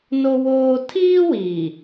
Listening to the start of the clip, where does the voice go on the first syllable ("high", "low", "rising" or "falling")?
high